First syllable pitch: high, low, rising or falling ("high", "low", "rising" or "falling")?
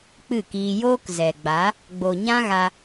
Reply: falling